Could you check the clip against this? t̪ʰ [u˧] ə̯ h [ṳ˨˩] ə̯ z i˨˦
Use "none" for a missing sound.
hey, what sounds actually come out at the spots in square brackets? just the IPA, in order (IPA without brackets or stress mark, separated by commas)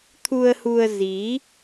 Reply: u˧, u˧